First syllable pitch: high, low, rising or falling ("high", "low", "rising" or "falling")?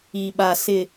low